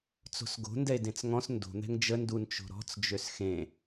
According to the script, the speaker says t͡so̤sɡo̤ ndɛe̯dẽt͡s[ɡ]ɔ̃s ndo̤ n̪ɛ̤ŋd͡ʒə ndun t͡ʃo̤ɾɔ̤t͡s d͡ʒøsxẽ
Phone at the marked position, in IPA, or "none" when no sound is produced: ŋ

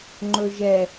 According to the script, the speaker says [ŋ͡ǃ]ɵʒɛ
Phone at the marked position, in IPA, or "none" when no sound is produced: ŋ͡ǃ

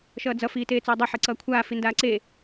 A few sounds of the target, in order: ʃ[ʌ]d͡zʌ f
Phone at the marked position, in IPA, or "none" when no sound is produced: ʌː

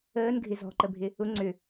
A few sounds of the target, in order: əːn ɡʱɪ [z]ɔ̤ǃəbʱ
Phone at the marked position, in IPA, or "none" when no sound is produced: z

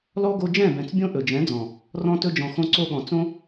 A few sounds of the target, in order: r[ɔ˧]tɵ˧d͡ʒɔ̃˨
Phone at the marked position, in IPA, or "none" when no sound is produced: ɔ̃˧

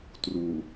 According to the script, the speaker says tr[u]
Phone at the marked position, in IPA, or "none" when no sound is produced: u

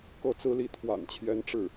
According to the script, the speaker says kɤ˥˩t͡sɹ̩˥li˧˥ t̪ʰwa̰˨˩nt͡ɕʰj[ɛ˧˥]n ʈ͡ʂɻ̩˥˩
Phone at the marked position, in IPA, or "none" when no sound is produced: ɛ˧˥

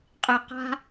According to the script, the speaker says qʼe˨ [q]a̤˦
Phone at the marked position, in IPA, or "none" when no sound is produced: q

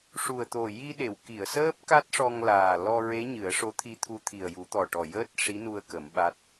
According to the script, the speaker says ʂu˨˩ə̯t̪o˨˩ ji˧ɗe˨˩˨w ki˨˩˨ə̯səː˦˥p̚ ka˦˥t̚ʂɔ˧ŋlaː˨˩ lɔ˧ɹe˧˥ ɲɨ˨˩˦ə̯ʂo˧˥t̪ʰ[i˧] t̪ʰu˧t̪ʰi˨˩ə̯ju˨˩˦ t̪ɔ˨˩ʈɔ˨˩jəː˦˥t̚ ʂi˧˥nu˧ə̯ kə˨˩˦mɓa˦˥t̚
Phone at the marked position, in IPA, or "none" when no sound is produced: i˧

